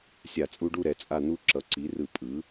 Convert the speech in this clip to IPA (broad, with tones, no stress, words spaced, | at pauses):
sʲa˧˩˧t͡sʼu˦ɖu˥˨ ɾɛ˩˥t͡sʼa˥˨ n̪u˦ ǁʌ˩˥ǀi˩˥rɯ˧˩˧ pʼɯ˩˥